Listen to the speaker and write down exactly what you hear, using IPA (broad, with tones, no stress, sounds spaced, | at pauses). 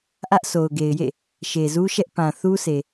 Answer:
ʔ ä˦ ʔ s o˨ ʊ̯ ɡ e˨ ɪ̯ j ḛ˦˨ | ʃ e˨ z u˦ ʃ ɛ˦ ʔ p ã˨ θ u˦ s e˨